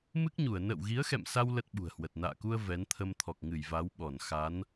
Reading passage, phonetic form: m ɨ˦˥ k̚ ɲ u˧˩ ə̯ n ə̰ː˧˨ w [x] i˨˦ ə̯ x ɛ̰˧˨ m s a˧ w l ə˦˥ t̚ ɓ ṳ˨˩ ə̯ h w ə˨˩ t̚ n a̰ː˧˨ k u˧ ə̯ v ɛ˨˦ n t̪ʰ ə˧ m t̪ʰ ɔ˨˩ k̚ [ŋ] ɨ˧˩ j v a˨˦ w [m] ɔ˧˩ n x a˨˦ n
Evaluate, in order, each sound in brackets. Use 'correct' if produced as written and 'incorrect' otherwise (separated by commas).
incorrect, correct, incorrect